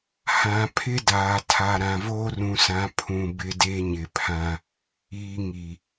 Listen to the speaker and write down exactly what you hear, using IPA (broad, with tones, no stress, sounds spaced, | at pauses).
h ã˨ pʰ ɪ˦ d aː˨ tʰ a˨ ɾ ã˨ v oː˦ r ũ˨ s ã˨˦ pʰ ũ˨ b ɪ˦ d e˦ ɲ ɪ˨ pʰ ã˦ | iː˨ ŋ i˨